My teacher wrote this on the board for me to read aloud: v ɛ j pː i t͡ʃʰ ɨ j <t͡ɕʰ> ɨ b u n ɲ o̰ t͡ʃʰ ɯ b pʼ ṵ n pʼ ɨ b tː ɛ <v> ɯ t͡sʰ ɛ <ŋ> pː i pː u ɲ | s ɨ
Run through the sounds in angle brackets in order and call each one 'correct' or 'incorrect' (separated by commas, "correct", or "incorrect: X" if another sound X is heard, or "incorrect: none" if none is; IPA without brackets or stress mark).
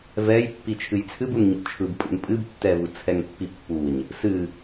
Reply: incorrect: t͡sʰ, correct, correct